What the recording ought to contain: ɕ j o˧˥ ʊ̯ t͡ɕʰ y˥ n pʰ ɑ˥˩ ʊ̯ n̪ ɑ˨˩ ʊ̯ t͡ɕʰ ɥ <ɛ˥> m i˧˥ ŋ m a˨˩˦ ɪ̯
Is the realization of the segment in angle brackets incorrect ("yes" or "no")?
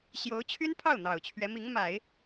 yes